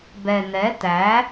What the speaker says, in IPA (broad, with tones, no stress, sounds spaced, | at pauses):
b ɛ˨ n̪ ɛ˨˦ t̪ æ˨˦